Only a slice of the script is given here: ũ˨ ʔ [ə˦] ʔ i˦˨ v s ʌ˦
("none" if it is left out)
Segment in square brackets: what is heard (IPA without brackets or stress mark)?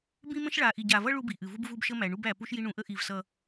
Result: ə˦